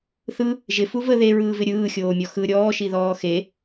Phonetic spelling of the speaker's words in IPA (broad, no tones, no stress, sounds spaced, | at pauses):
θ ɯ | ʒ ɪ f u v ə ð e ɹ ɯː v ɪ ɾʲ ɯː xʲ oː mʲ ɔ x ɯ ɾʲ ɔː ʃ i ð ɔː x e